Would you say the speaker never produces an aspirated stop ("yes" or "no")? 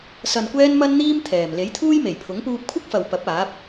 no